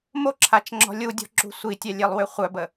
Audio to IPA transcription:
moǁʰat͡ʃŋ͡ǁɔ̤ lʲudʲɔ̤ǁṳ sʷitʲɛlʲelˠwø χʷœbə

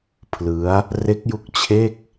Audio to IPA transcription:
pʰlɯ˦˥a̯ | re˦˥k̚ju˦˥k̚ t͡ɕʰe˥˩k̚

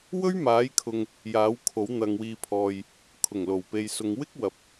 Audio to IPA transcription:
wɵ˥ɥmaː˨˥jkʰʊ˨ŋ | jaː˨˥wkʰo˨˥w n̪ɐ˨ŋwiː˨pʰɔː˨j | kʰʊ˨˩ŋ lo˨˩wpe˨jsʊ˨˧ŋ wɪ˥k̚wɐ˨p̚

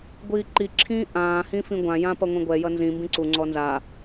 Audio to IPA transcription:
ɡʷiːǃiǁʰĩː ʔãː hĩfĩɡʷãjã pʌŋʷĩɡʷɛjʌ nzĩmbĩ ǀuŋ͡ǀɔ nza

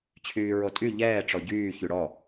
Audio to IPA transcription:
t͡ɕʰyːɹotʼy ʎɛː ʈ͡ʂɔɟyː çyɽɔ

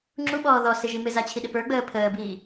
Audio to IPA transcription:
ŋ͡ǁuɓɔː ðɔsɪʒi mɪzat͡ɕʰiɗɪ pə˞ɡ͡bəː pʰəːbiː

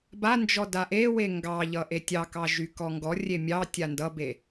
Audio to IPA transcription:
band͡ʒɔ daʔewe ŋɡɑʎʌ ʔetʲɑkɑ ʒykɔŋɡɔrʲe mʲɑ tʲandʌbe

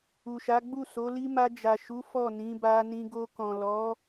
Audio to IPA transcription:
u˨ʃa˨˦ɡ͡bu˦˨so˨˦ li˧ma˧d͡ʒa˨ʃu˨˦ fɔ˦˨nĩ˨˦ba˧ nĩ˧ɡo˧ kɔ̃˨lɔ˨˦

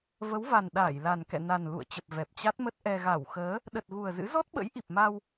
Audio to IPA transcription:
və˨˦wva˨˩n ɗaː˧˩jla˨˩nkɛ̰˧˨ na˨˩n lṵ˧˨ə̯t͡ɕə˨˩p̚ vɛ˨˩p̚t͡ɕa˦˥t̚mə˦˥t̚ʔɛ˧ ɣa˧˩wxəː˨˦ | ɗə˨˩t̚ ɣu˨˩ə̯zɨ̰˧˥ zɔ˦˥t̚ɓə̰˧˥j ʔi˨˩p̚ma˧w

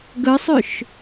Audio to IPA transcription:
ɡəsˤøʃ

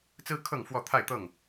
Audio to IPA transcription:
t͡sɹ̩˦kʰɤ˥˨ŋfwɔ˥˨ t̪ʰa˥˨ɪ̯t̪ɤ˥˨ŋ

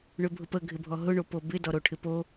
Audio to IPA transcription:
ɳøbʱʊpə ɡʱɪbʱɔɦʊ ɳopobɪ dɔɾoʈʰɪpo

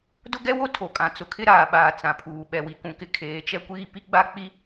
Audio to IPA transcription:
dʊ˦ɡɛ˦wo˦ tʰo˨kʼã˨˦ t͡sʊ˨kʰɪ˦ɾaː˨ɓaː˨ t͡sã˨pʰuː˨ ɓɛ˨wi˨kũ˨kɪ˦ kʰeː˨˦t͡ʃɛ˦kʷiː˦ pi˦ɡ͡ba˦k͡pi˦

